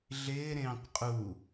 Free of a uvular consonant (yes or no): no